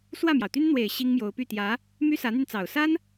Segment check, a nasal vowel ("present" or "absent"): absent